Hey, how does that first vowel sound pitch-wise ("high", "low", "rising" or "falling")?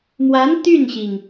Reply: rising